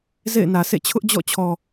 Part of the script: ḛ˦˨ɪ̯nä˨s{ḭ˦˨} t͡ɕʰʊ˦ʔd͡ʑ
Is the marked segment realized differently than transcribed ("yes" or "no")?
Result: yes